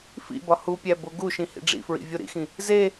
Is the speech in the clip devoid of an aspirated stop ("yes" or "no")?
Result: yes